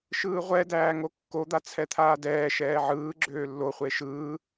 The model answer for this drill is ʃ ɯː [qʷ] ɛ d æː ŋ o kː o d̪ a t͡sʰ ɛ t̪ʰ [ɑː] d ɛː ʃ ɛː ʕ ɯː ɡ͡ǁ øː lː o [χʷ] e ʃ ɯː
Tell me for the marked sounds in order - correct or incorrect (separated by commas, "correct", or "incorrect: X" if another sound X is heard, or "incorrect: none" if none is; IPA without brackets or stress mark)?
incorrect: ʁʷ, incorrect: aː, correct